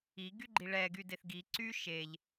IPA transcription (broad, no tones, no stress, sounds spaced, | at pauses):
i ɡ y ɡ͡ǃ i ɭ ɛ ɡ y d e θ ɡ i ǀ y ʃ e ʎ